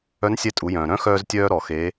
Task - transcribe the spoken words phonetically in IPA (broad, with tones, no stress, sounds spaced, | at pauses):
œ˧˥ n sʲ ɛ˧˥ tʼ u˩˧ j œ̃ː˩ ɾ œ̃˥ x œː˥ z tʲ œː˥ ɾ ɔ˩˧ x e˧˥